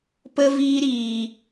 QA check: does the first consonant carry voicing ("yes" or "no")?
no